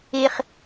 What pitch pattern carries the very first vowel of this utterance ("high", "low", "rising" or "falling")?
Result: high